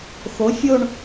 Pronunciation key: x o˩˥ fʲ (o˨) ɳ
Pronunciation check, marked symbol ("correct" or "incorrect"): incorrect